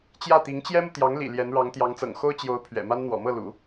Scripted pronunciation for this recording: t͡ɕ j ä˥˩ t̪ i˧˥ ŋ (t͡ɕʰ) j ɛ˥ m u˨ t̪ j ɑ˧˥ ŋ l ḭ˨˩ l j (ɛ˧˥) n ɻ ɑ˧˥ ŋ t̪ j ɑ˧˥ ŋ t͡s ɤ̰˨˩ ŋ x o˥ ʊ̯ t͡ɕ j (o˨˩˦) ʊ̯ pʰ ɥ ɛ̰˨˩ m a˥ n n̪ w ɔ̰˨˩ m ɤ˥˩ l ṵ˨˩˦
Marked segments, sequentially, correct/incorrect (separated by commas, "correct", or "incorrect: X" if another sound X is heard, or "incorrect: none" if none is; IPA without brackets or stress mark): incorrect: t͡ɕ, correct, incorrect: o˧˥